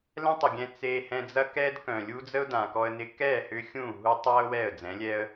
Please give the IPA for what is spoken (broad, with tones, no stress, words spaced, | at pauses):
lɛ̃˦tˤə˨ɡʲɛ̃˧ t͡se˧ hɛ̃˧d͡zɐ˦ kɛː˦dkœ̃˨lʲu˦ d͡zə˦ʊ̯ dã˨kɔ˧ə̯nɪ˧ kɛː˦˨hʏ˧ xʲũː˦˨ ɦu˧tˤa˦ʊ̯ wɛ˦˨ə̯d͡zɛ̃˨˦lʲɛ˦ə̯